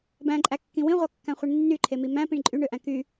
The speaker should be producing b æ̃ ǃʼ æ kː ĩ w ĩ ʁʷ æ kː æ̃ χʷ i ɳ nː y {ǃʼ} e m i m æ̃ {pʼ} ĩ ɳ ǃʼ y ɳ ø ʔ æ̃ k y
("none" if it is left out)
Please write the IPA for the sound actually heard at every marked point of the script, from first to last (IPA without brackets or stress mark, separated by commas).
ǃʰ, p